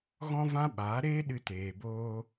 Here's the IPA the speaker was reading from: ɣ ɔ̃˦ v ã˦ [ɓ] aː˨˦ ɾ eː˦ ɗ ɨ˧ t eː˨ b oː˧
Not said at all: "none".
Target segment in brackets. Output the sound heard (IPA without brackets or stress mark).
ɓ